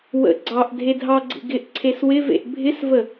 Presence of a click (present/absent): present